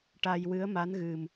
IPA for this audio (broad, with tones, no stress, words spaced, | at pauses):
ʈa˧jwɨ˧˥ə̯ma˧˥nɣɨ˨˩m